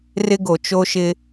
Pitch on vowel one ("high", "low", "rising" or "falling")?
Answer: high